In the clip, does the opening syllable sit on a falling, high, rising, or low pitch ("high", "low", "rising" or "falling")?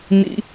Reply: high